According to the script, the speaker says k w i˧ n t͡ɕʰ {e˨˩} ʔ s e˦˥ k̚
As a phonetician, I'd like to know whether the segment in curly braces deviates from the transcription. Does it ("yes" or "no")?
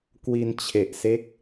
no